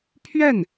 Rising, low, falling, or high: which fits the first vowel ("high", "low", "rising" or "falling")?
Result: falling